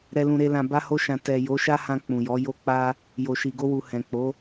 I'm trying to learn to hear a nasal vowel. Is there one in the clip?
yes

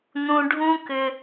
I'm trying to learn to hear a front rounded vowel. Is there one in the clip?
yes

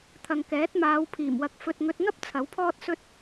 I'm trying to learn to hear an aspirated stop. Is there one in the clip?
yes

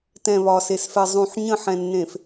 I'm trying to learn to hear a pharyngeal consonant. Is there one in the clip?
yes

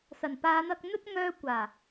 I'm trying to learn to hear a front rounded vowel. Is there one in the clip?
yes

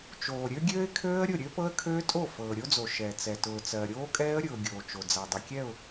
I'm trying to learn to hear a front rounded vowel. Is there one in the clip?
yes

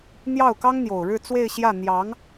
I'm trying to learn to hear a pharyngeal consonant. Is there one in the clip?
no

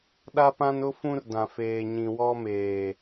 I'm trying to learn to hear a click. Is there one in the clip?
no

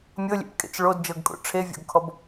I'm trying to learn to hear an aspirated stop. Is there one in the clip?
yes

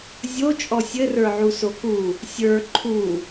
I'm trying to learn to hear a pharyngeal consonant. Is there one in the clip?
yes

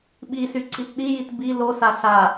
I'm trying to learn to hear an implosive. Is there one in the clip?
yes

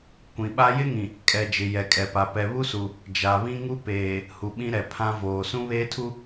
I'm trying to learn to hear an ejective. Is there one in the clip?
yes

